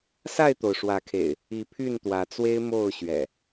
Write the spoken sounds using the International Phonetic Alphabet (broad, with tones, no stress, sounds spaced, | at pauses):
s a˥˨ ɪ̯ t̪ o˩ ʊ̯ ʂ w ä˨˦ kʰ ḛ˨˩ ɪ̯ | i˨˦ pʰ y˥˨ n t̪ w ä˨˦ t͡s w e˦ ɪ̯ m o˥˨ ʊ̯ ɕ ɥ ɛ̰˨˩